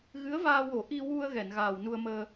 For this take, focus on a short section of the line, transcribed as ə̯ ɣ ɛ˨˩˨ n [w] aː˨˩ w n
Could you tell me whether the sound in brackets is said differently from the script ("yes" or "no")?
yes